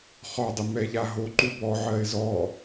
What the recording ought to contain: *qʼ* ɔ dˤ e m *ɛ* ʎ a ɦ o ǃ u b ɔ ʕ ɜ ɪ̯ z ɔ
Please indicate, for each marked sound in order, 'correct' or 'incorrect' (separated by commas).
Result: incorrect, correct